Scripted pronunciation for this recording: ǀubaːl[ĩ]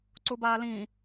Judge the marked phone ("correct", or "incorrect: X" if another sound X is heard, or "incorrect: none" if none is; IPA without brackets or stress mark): correct